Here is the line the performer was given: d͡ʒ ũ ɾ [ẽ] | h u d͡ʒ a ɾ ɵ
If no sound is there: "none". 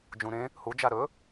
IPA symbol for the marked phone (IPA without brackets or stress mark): ẽ